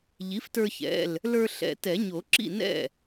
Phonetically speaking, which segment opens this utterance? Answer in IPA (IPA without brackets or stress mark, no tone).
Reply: ʎ